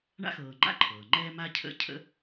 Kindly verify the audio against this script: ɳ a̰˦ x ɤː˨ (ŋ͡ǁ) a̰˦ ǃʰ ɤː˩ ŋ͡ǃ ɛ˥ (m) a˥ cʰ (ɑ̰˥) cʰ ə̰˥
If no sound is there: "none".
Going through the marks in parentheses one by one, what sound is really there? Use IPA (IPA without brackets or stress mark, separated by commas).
ŋ͡ǃ, m, ə̰˥